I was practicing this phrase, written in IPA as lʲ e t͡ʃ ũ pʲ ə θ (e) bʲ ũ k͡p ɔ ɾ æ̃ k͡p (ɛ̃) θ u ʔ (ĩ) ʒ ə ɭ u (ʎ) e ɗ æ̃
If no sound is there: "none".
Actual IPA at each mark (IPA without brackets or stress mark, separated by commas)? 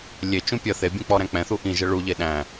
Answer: e, ɛ̃, ĩ, ʎ